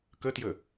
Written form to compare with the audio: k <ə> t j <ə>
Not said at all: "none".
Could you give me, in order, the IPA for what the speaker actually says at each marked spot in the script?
ə, ə

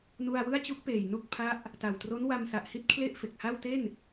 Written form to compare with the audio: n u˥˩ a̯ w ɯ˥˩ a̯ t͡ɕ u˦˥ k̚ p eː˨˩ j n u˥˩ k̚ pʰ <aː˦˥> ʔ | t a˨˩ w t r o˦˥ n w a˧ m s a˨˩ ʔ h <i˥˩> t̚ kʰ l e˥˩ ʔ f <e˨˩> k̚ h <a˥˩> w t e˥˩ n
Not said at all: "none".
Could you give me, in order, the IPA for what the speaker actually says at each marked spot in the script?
a˦˥, i˥˩, e˨˩, a˥˩

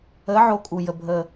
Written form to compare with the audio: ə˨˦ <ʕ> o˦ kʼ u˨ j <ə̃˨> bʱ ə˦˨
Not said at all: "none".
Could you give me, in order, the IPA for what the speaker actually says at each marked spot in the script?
ʕ, ə˨

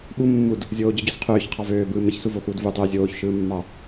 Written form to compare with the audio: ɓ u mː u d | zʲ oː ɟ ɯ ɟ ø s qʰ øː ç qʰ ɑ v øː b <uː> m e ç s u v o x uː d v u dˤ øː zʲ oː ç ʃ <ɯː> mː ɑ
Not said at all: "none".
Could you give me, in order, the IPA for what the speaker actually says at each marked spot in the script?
ɯː, ɯː

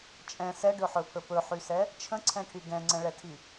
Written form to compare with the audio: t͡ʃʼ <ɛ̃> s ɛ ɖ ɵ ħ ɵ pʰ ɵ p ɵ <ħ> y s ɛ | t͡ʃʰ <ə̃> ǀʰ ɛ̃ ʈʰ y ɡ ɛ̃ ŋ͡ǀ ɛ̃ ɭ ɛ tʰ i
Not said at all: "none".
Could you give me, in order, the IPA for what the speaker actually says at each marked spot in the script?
ɛ̃, ħ, ə̃

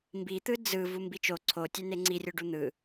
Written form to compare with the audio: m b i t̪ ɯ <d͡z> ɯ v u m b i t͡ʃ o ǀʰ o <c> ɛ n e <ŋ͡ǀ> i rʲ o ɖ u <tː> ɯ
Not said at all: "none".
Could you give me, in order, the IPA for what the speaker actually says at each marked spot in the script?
d͡z, tʲ, ŋ͡ǀ, n̪

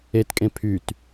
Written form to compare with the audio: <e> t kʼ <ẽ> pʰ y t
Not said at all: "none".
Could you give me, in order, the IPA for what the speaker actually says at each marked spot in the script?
e, ẽ

